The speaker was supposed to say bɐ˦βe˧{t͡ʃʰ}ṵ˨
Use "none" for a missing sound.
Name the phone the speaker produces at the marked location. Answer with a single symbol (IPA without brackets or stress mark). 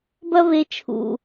t͡ʃʰ